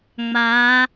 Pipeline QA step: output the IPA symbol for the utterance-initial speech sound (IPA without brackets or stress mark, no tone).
ŋ͡m